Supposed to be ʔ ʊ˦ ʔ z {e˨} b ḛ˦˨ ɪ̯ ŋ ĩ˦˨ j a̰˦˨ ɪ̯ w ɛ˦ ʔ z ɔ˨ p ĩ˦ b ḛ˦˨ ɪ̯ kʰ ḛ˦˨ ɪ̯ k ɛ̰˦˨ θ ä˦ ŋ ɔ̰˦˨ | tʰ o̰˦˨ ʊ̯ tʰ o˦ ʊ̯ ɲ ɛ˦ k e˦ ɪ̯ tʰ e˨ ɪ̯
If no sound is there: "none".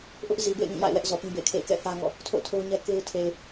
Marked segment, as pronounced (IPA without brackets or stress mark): i˨